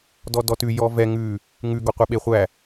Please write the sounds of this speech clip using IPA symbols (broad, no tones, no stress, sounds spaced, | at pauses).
d ɔ d ɔ t ʉ j ɔ v ɛ ŋ ʉ | ŋ ʉ ɡ ɔ qʷ e ɓ e χʷ æ